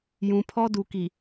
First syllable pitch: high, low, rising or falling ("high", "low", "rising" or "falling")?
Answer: low